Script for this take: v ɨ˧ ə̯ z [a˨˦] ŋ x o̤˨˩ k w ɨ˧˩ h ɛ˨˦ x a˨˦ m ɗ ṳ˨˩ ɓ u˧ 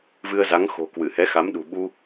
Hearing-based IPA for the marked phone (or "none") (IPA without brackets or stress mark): a˨˦